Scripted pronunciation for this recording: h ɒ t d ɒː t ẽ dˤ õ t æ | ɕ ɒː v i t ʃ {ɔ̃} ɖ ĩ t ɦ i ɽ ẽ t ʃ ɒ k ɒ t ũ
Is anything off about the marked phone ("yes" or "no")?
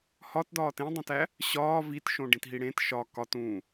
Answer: yes